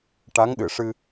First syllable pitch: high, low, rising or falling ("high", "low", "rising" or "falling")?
rising